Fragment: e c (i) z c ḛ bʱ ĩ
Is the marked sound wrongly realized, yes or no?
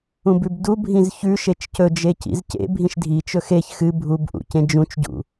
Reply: yes